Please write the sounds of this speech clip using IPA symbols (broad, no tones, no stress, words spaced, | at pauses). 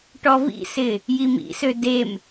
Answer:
ʈɔvḭsɪ | jimḭsø dem